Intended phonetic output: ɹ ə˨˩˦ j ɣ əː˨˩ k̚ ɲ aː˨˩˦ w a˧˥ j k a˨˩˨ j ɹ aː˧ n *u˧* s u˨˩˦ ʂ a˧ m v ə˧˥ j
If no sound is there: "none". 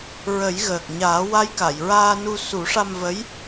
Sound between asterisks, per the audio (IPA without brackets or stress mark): u˧